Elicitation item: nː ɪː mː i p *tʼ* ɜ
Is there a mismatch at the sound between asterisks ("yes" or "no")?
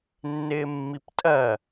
no